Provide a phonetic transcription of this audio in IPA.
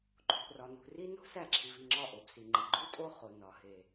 ǃʼ ṳ˨ ʔ r ɒ˨ n ṳ˨ r i˦ n o̤˦ s æ˦˨ ǁʰ i˨ v i˦˨ ŋ͡ǁ ɒ˦˨ ʔ o˨ b s i˨ ŋ͡ǃ i˨ ɡ͡ǃ u˦ tʼ o˦ χ o˨ n ɒ˨ h e˨

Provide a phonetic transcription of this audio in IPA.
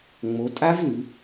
ŋ͡m o˩˧ tʼ a˦˥ v l ʉ˩˧

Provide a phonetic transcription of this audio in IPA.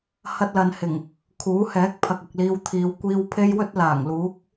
h ɐ˧ t̚ l ɐ˨ n h ɪ˨˩ ŋ | kʰ uː˨˥ h ɛː˨˥ k̚ pʰ ɐ˨ k̚ ʊ˨ k̚ l iː˧ w t̪ʰ iː˨˧ w kʷ iː˧ w pʰ e˥ j w ɵ˥ t̚ l aː˨˩ ŋ l uː˨˥ k̚

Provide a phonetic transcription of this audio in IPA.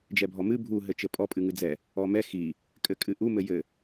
d͡ʒ ɛ bʱ ɔ m ɨ bʱ u ɦ ɘ t͡ʃ ɘ pʼ ɔ pʼ ɨ ŋ ɨ d͡z ɛ | ɔ m ɛ x i | kʼ ɘ kʼ ɨ ʔ u m ɘ j ɘ

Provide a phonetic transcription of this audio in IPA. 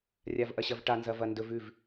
rʲ a v ʔ ɐ ɕ ɐ v ʈ a n z ɐ v ɐ n d ɵ v ʉ v

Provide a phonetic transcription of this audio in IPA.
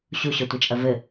ɕ u ɕ ɔ tʷ i t͡ʃʼ ɐ v ɘ

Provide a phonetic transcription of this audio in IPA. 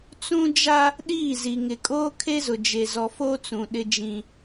t͡s ũ˦ d͡ʒ a˦ | ɗ iː˦˨ z i˨ ŋ ɪ˨ kʼ oː˦ kʰ e˦ z ʊ˨ d͡ʒ e˨ z ɔ˨ f o˦ t͡s ũ˨ ɗ ɪ˦ d͡ʒ ĩ˦

